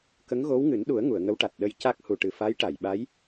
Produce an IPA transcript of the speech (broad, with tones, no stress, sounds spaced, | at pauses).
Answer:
k ə˧˥ ŋ ɣ o˧˥ w ŋ ɨ˨˩˦ n ɗ u˨˩˦ ə̯ ŋ u˨˩˨ ə̯ ŋ ə˧˥ w ʈ a˨˩ t̚ ɗ ə˧˥ j c a˦˥ k̚ h u˨˩ ʈ ɨ˨˩ f a˧˥ j ʈ a˨˩˨ j ɓ a˧˥ j